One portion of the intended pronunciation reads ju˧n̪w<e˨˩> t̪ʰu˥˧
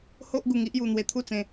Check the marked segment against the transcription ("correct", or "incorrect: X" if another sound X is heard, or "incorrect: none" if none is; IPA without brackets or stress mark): incorrect: e˧